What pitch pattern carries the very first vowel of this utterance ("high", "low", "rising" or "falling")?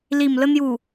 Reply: low